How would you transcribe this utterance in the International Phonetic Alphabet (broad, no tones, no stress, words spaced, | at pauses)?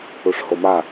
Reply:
uʂhoma